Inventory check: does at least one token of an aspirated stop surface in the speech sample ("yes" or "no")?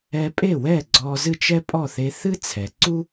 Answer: yes